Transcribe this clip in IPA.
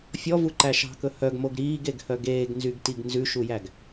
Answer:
fʲ ɔ v u ǃ æ ʃ ɑ̤ k ɵ h œ ɡ m o ɡ ɾ iː ɡ e ɡ h œ ɡ eː ɡ n z y ɡ t i ɡ n z ʉ ʃ u j æ ɡ

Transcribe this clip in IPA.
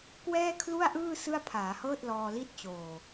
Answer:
k w ɛː˥˩ kʰ l u˥˩ a̯ ʔ ɯː˥˩ s ɯ˥˩ a̯ pʰ aː˩˦ h ɤː˥˩ t̚ l ɔː˧ l i˦˥ t̚ t͡ɕ oː˨˩

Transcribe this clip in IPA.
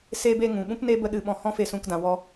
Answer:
s eː˧ b e˧ ŋ ũ˨ ɓ ũ˦ p n e˦ b ə˧ ɗ ɨ˨ ɓ ɔ̃˧ h ɔ̃˦ f e˧ s ũ˧ k d ã˨ w ɔ˧

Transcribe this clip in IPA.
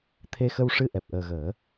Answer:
t̪ʰ e˧ x ə˧ w ʂ ɨ˧ ʔ ɛ˨˩ p̚ ʔ əː˨˩ ɣ əː˨˩˦

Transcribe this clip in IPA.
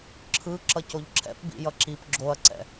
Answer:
ǁʰ ɯ ǁ ʌ c o ʎ ǁʰ ɛ̰ p b ḭ j ʌ ǁ i p ɡ͡ǁ o ɐ̯ ǀ ɛ̰

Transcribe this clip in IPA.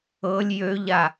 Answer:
ɤ lʲ j ø ʎ a

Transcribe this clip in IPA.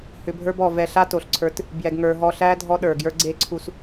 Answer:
h ʏ˧ bʱ ə˞˦ b ɔ˨ v ɛ˧ ɬ a˦ t o˨ ɬ ǀʰ ə˞˨˦ t | b j ɛ˨ ɡ ŋ ə˞˨ ɦ ɔ˧ ɬ æ˦ dʱ ɔ˦ ɗ ə˞˨ ɡ j ə˞˦ ɡ͡ǀ e˦ ǀʰ u˧ s

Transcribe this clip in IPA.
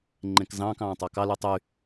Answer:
ŋ͡ǃ ẽ k z ɑ̃ː k ɑ̃ː tˤ ɑ k ɑ l y tˤ y

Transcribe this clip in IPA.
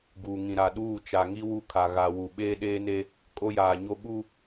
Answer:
ɡ uː˨ ŋ ĩ˨ ɾ a˨ ɗ uː˦˨ t͡ʃ a˨ ŋ i˦ w u˦ kʰ a˨ ɣ a˨ w u˨ ɓ eː˦ ɗ eː˦ n e˦ | kʼ o˦ j aː˨ ɲ o˦ ɓ u˦

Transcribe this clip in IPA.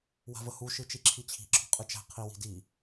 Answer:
w a̤ v ə h u ʃ ɯ t͡ʃ i ǁʰ i t͡ɕʰ i̤ ǁʰ ɔ̤ qʼ ɯ t͡ʃ æ̤ qʰ i w i̤ d i

